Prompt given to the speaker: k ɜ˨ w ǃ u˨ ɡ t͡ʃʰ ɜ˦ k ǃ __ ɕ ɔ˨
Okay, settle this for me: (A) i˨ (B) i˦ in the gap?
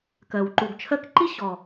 B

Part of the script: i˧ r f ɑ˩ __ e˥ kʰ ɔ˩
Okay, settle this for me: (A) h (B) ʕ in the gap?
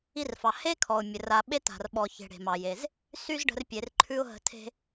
A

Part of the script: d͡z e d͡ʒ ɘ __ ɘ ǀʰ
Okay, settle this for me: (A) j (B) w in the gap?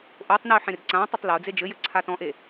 A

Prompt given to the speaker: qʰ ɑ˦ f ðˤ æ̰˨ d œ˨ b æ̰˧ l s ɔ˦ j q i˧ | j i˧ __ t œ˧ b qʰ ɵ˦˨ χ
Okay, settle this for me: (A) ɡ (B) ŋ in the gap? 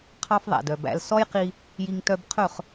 B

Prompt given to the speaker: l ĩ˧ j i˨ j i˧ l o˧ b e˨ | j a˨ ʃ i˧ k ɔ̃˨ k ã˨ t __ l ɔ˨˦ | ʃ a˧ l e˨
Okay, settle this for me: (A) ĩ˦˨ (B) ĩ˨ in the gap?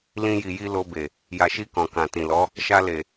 B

